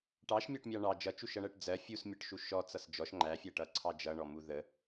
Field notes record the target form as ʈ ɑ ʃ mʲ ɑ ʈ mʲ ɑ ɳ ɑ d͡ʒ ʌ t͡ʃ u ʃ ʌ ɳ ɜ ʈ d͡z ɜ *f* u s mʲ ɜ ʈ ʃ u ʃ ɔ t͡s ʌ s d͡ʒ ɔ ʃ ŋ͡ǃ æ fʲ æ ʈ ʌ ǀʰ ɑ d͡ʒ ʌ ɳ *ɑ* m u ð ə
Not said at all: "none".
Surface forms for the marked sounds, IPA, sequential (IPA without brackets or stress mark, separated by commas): fʲ, ɔ